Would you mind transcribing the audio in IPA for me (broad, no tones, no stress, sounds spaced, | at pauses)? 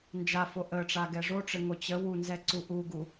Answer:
n d͡ʒ a f o ʔ ə ʈ͡ʂ a ɡ ɛ ʐ o ʈ͡ʂ ɘ ŋ o t͡ɕ ə w u n z ɛ ǀ u ʔ u ɡ u